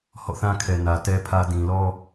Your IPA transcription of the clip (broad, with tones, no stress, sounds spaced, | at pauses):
h ɔ̰˦˨ θ ã˦ kʰ ɛ˨ n ä˨ t ɛ˦ pʰ ä˦ d ĩ˨ l ɔ˦